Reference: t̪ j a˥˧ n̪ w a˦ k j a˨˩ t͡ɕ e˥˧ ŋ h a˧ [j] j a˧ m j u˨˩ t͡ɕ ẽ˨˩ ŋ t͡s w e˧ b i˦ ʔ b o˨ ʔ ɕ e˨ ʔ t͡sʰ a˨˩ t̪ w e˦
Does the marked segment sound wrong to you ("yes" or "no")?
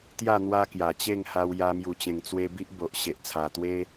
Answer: yes